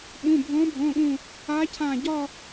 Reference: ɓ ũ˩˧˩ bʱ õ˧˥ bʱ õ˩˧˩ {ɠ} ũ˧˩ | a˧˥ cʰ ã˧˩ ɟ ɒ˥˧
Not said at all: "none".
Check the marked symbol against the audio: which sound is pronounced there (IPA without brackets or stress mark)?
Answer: ɠ